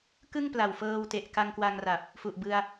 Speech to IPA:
kɯ˥˩ŋpla˨˩wfɤː˧wte˨˩ʔ ka˧ŋkwa˧ŋra˨˩p̚ | fu˨˩ʔ bɯ˧a̯

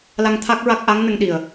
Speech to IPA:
la˧ŋ t̪ʰa˦˥k̚ɹa˦˥k̚ ʔa˧˥ŋnə˧ŋɗi˨˩ə̯

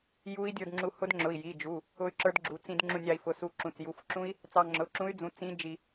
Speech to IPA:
ju˦˥i̯dʲə˞˧d ŋ͡ǁu˧hʊ˦˥dŋ͡ǁʊ˩˧˩i̯ ji˩˧˩d͡ʒu˩˧˩ | ʊ˦˥y̯ǁə˞˦˥dɡ͡ǁu˩˧˩ t͡sĩ˧d ŋ͡ǁũ˧nʲɑ˧i̯fʊ˩˧˩su˧ ǁũ˩˧˩t͡sju˩˧˩fǁũ˦˥i̯ | t͡sɑ˧ŋ͡ǁʊ˩˧˩ǁũ˦˥y̯d͡zũ˩˧˩ t͡sĩ˦˥ d͡ʒi˧

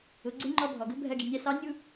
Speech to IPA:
ʊ˩˧ɡ͡ǀɪ˧˥ ŋ͡ǃɔ˧bʱɔ˩ɡʊ˧˥bʱɜ˧ ɡi˩nʲæ˧sɑ˧˥ nʲu˥

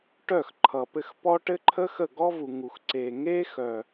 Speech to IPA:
ʈœ˦˨xǃʰʌ˨pɘ˧x pɔ˦ʈɘ˦ ǃʰə˦xə˦˨ ɡɔ˦vu˨ŋu˨x ǀe˨ŋe˦ xœ˨

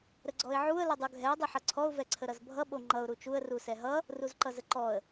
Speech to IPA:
ɾəɡ͡ǀɔɪ̯ʕuə̯ lədˤuɡʱɛə̯ dˤoħʌǀʰɔʊ̯ vɛǀʰəɾʌzbʱʌ ɓoŋ͡ǃʌʊ̯ ɾut͡ʃuə̯ rusɛɦʌ | ruzǃʌzəǃɔə̯

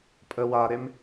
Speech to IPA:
pʼə waɾem

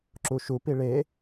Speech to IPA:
ǁuʃupi ɭe

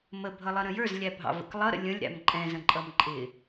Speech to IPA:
məbʱʌlˠʌɾə̃ jə˞zlʲæbʱɑ̰və̰k lˠʌɾə̰ lʲə̃lʲɾæ̰m ǃʼɛ̃zə̃ǃʼʌm ǃʼɪ

